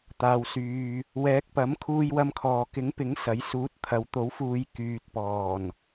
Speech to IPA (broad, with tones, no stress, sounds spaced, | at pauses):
t̪ aː˨ w s yː˨ | w ɛː˨˥ k̚ p ɐ˨˥ m kʰ uː˧ j w ɐ˧ m kʰ ɔː˨ k ɪ˨˥ ŋ p ɪ˨˥ ŋ s ɐ˨˥ j s uː˨˥ t̚ t̪ʰ ɐ˨ w t̪ o˨˥ w f uː˨˧ j k yː˨ t̚ p ɔː˨˩ n